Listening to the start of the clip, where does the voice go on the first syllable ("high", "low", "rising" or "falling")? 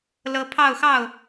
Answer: rising